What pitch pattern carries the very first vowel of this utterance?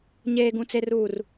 low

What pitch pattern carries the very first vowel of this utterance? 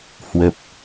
low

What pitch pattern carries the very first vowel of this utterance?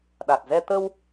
low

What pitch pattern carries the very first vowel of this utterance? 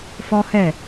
high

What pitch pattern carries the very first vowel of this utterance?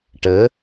rising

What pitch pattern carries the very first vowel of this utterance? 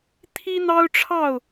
high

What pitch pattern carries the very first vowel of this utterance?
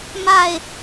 falling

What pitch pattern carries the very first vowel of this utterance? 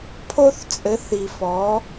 high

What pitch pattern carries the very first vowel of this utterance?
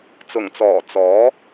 low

